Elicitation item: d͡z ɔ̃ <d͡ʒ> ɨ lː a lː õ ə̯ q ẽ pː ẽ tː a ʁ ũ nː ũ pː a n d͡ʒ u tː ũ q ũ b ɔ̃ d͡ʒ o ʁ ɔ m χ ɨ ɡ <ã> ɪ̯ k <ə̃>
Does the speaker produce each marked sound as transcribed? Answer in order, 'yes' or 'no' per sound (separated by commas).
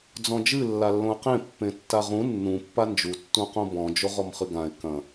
yes, yes, no